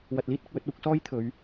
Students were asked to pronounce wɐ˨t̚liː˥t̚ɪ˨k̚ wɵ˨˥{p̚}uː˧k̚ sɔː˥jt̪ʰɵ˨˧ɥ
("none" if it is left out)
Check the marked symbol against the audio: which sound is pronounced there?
t̚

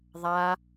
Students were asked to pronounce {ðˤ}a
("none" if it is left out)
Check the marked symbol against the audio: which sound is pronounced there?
ðˤ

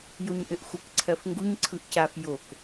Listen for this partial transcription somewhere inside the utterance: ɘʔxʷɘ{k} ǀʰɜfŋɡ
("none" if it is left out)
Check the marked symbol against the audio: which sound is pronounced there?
k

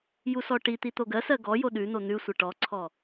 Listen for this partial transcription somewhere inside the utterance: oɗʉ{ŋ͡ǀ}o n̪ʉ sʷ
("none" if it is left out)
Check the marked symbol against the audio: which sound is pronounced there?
n̪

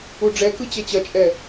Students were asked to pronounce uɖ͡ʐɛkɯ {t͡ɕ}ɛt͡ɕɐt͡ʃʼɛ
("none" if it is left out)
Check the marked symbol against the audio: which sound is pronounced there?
t͡ɕ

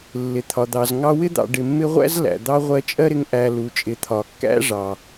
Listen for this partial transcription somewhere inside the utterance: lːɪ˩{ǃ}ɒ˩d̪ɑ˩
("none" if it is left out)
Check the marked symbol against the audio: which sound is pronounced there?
t̪ʰ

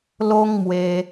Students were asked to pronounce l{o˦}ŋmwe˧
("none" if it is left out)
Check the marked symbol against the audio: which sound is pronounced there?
o˦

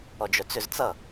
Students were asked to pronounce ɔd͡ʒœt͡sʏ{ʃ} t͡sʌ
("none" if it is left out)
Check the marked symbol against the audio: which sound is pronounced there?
z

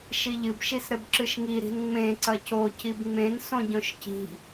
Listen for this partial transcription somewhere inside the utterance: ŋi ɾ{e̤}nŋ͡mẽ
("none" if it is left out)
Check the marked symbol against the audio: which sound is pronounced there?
i̤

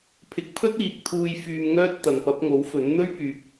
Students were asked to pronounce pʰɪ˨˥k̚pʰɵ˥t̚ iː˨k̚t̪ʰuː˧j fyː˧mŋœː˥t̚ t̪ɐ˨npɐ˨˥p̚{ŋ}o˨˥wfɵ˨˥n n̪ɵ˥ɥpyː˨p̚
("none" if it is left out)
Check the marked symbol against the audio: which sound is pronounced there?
ŋ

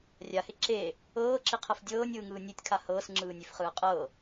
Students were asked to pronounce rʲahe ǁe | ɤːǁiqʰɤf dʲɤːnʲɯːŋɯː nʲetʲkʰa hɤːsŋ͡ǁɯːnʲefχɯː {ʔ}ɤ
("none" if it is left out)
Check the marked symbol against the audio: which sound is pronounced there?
qʼ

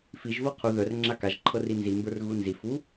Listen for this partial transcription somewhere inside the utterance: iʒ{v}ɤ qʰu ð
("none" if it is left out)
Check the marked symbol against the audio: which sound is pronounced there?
v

